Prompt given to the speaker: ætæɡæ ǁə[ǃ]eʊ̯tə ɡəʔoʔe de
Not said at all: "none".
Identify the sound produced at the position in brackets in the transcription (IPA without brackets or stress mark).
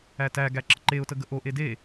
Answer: ǃ